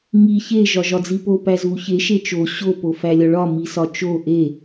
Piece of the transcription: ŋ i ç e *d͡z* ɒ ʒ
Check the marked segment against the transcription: incorrect: ʒ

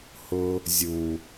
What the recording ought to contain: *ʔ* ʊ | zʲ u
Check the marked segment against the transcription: incorrect: h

